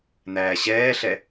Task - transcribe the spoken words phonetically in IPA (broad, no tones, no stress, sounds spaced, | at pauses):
n̪ æː ɕ ɛː ɬ ɛ